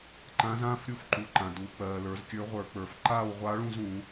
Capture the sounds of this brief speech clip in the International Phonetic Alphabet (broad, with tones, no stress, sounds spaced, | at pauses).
ǃ ã˧˥ z ãː˥ f ɾʲ u˧˥ f ǃ u˩˧ ǃ ã˩ d uː˩˧ k͡p ɜː˩ l ə˞˩˧ z kʲ ə˞˧˥ ʁʷ ə˞˧˩˧ k͡p ə˞˩ f ǃ aː˥˧ w ʁʷ a˧˥ ɭ ũ˥˧ z ũː˧˩˧